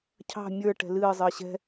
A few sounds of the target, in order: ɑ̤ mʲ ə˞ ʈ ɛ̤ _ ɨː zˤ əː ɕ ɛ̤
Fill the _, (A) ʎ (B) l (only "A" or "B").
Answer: B